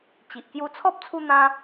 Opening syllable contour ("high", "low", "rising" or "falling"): low